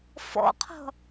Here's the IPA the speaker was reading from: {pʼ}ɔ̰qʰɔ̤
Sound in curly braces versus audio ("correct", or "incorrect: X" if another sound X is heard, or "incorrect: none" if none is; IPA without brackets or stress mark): incorrect: f